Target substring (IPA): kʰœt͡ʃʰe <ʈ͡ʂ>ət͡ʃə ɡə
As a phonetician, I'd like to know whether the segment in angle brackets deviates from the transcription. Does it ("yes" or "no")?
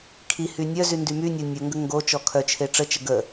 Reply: no